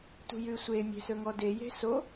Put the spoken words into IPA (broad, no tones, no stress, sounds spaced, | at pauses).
t ṳ j ʉ sʷ e mʲ e̤ s ɵ ŋ ɔ d e j e̤ s o